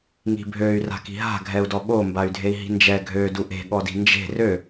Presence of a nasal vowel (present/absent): absent